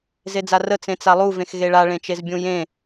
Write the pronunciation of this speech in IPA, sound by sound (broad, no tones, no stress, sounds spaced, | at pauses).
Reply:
z e d͡z a r ə t͡s ẽ t͡s a lˠ u v ẽ x ɣ e ɭ a ɭ ẽ t͡ʃ e z bʲ ũ j ẽ